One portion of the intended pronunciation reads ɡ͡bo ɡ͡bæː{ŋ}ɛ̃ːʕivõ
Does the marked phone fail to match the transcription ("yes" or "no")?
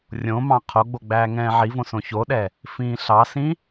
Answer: no